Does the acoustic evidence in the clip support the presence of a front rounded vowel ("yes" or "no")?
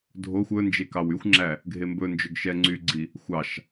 yes